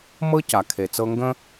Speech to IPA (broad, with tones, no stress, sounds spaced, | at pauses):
m ɤ˥ c a˩ kʰ e˩ t͡s ɤ˧ ŋ ɡ ə̃˥